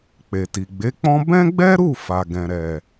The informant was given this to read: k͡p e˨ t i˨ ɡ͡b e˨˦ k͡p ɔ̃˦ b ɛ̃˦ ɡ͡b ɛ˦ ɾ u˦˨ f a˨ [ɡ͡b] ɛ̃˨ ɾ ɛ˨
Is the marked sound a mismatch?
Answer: yes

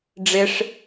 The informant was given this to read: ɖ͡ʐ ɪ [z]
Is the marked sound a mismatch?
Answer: yes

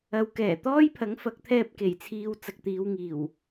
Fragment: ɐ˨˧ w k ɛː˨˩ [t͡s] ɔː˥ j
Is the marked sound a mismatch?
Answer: yes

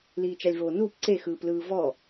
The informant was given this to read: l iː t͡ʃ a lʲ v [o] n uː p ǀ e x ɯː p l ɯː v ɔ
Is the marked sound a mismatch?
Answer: yes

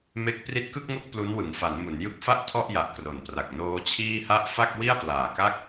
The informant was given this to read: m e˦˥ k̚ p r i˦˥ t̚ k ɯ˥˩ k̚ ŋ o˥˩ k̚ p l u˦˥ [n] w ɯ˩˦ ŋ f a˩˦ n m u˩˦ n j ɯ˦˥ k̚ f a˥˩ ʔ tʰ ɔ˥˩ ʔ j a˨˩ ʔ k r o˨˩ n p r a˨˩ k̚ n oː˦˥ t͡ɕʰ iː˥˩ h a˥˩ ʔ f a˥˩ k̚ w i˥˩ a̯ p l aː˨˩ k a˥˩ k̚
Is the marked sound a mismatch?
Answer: no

